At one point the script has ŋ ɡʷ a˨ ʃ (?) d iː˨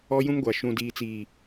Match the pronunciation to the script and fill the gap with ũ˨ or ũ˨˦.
ũ˨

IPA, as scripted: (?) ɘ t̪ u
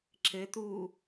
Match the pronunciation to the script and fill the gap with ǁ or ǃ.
ǁ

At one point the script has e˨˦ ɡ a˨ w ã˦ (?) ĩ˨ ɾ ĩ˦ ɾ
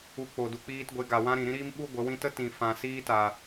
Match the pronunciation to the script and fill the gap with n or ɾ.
ɾ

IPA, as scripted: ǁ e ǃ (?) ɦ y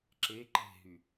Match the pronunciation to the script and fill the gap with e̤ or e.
e̤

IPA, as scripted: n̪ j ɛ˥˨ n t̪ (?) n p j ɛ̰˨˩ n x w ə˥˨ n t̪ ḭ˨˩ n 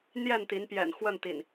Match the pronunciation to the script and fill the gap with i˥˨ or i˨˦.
i˨˦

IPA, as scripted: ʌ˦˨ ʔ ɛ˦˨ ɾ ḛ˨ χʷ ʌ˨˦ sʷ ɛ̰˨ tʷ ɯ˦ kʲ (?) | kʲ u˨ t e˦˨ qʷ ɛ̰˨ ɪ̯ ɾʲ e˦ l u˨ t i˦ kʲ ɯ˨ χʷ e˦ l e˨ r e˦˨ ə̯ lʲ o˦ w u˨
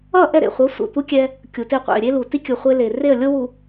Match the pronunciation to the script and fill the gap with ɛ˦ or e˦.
ɛ˦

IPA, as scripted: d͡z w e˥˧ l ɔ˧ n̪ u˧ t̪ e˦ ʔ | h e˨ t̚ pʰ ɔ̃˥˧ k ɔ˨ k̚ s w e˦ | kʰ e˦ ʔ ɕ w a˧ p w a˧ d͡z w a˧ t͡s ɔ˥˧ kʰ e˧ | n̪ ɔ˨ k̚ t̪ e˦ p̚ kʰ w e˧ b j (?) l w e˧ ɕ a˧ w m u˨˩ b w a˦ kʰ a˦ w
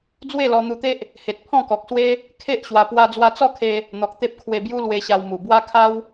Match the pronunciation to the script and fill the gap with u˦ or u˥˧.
u˦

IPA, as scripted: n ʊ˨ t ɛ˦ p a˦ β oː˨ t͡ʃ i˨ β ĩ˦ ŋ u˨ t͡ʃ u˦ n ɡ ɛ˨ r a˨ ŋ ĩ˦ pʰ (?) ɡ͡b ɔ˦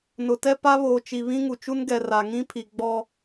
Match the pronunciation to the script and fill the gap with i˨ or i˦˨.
i˨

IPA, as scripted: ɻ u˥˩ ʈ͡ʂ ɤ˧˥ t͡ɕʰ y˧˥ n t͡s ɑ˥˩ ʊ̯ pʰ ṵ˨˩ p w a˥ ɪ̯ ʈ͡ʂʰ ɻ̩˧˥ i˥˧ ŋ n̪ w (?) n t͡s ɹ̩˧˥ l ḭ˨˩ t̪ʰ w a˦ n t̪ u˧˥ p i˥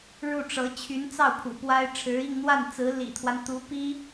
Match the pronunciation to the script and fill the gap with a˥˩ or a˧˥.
a˥˩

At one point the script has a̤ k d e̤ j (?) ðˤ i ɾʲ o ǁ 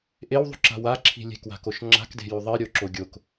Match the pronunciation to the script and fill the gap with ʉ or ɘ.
ʉ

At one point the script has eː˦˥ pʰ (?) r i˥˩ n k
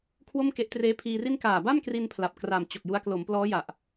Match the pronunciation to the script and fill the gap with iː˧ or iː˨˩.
iː˧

